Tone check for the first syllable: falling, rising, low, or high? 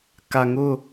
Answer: low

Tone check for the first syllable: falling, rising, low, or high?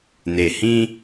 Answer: low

